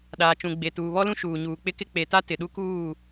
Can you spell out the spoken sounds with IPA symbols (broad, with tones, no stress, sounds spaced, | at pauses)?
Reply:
ɗ aː˨ t͡ʃ ũ˨ ɡ͡b e˨ t uː˨ β ɔ˦ l ũ˦ ʃ uː˨ ɲ uː˨ k͡p ɪ˦ k ɪ˦ k͡p e˨ t a˦ t ɪ˨ ɗ u˦ k uː˦˨